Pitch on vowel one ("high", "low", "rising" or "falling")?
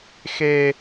high